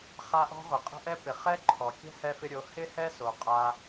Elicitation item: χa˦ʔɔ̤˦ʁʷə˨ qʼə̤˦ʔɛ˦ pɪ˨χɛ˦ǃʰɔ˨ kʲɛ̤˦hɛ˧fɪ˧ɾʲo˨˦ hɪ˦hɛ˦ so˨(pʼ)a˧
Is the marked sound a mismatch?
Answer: yes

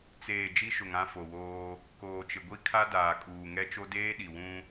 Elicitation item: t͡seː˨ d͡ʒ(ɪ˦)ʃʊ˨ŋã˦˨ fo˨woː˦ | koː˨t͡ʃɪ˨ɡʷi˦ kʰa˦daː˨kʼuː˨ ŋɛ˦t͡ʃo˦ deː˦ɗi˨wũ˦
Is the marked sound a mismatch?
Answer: yes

